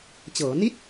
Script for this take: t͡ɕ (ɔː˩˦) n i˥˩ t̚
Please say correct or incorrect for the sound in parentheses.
incorrect